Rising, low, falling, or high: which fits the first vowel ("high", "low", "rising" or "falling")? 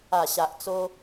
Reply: low